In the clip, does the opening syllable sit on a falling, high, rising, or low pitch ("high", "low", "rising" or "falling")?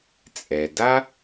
low